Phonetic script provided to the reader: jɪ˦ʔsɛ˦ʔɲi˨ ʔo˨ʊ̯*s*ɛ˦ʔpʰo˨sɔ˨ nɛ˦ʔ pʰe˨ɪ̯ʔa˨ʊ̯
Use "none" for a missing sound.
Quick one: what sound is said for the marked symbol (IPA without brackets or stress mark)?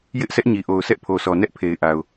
s